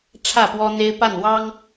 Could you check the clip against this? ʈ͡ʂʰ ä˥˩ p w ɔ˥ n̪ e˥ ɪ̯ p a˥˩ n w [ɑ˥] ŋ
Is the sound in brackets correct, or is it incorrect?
correct